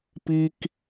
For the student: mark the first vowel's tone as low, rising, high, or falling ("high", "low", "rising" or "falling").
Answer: high